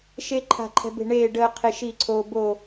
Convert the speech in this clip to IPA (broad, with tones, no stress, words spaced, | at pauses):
ʃe˦ ǃʰa̤˥˨ ǃʰɛ̤˦be̤˥˨ ɳeː˥˨ɖəː˦ qʰe˦ʃi˥˨ǀʰoː˦bo˥˨